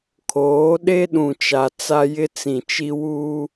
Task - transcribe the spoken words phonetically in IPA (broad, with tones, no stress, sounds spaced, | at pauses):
kʰ oː˨˦ ɗ e˦ ɗ ũ˨ t͡ʃ a˨ t͡s a˦ j ɪ˦ t͡s ĩ˨ t͡ʃ i˦ w u˦